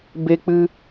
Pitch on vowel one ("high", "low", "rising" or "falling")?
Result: high